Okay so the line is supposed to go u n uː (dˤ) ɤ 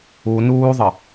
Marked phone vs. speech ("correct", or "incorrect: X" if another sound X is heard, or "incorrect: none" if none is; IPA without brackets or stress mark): incorrect: ðˤ